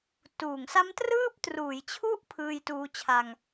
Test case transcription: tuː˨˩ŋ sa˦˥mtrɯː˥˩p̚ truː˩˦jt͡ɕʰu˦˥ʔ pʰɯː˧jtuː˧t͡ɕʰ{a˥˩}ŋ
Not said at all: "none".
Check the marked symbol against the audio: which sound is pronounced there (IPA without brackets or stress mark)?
a˧